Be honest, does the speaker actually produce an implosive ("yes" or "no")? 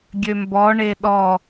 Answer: yes